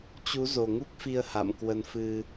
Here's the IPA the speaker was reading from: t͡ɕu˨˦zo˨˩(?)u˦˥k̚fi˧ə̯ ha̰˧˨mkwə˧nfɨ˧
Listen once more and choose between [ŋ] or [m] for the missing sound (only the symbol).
ŋ